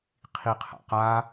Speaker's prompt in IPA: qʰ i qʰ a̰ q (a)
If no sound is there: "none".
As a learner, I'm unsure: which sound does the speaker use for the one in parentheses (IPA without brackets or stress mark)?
a